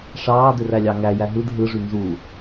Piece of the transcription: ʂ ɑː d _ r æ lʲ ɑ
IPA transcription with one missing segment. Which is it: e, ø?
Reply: ø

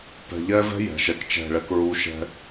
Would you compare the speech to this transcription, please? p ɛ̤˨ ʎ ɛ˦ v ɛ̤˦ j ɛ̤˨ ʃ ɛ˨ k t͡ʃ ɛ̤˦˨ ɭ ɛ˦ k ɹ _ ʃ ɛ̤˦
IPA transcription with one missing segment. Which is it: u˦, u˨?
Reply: u˦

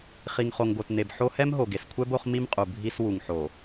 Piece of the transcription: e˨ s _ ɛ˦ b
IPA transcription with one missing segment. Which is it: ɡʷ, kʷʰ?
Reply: kʷʰ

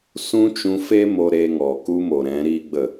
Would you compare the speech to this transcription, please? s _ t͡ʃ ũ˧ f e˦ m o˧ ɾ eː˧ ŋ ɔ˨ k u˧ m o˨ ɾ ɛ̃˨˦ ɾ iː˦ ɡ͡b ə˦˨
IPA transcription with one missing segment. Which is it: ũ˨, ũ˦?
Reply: ũ˦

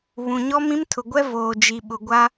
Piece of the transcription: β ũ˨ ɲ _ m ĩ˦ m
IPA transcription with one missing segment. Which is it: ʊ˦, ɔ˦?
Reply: ɔ˦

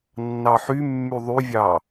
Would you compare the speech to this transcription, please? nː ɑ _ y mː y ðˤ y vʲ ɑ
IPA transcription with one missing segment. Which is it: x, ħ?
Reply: ħ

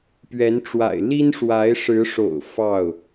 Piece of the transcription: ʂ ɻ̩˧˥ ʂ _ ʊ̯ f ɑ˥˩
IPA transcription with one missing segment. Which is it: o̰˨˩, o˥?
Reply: o̰˨˩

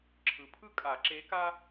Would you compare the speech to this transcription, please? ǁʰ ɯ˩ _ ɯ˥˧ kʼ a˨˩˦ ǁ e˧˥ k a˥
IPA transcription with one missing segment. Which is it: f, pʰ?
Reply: pʰ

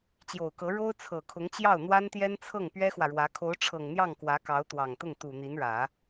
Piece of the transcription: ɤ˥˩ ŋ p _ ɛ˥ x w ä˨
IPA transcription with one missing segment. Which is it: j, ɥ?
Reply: ɥ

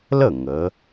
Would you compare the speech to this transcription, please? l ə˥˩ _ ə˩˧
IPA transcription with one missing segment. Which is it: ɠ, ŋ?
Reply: ŋ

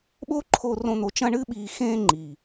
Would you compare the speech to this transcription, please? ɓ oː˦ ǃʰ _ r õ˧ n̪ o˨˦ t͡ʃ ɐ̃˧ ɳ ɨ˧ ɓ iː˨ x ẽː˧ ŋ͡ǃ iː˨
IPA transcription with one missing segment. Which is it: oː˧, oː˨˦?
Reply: oː˧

